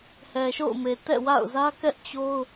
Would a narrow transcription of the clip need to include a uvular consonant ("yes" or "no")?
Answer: no